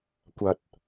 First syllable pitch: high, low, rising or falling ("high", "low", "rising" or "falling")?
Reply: low